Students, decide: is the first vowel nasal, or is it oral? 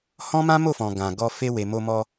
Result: nasal